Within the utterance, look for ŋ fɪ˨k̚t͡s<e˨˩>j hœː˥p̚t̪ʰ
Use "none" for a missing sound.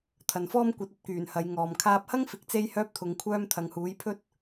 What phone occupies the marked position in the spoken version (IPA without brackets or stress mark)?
e˧